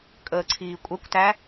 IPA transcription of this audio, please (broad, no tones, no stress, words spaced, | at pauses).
kʼəːǀʰiːkʷʼɛkʷtæ